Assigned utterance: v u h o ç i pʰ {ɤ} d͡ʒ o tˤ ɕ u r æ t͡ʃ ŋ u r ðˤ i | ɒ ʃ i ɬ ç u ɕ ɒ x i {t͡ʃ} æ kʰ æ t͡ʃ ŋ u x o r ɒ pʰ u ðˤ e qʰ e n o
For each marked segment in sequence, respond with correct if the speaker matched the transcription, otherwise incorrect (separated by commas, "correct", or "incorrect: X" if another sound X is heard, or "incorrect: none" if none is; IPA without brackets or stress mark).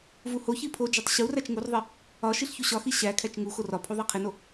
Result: incorrect: o, incorrect: ɕ